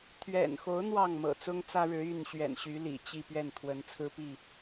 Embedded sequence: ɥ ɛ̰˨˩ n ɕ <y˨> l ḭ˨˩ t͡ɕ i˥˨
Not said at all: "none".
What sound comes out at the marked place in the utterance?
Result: y˨˦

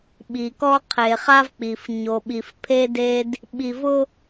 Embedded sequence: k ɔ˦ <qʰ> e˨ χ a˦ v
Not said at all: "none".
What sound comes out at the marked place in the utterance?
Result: qʰ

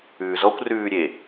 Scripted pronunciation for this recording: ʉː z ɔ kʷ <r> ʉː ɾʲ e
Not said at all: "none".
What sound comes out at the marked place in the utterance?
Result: r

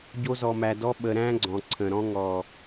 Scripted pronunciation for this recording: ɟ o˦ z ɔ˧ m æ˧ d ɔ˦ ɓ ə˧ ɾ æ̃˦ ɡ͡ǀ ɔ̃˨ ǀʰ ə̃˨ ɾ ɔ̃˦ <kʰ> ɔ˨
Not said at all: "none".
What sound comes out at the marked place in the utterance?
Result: ŋ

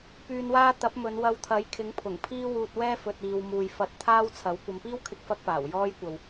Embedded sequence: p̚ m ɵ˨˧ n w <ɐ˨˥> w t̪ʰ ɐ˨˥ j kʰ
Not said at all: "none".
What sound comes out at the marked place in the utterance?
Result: ɐ˧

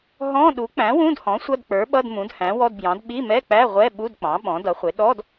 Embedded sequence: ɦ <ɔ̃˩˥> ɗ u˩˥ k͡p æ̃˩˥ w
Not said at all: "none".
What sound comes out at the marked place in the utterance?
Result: ɔ̃˧˥˧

